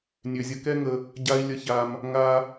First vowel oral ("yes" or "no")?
yes